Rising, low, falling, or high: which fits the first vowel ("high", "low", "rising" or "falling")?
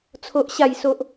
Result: high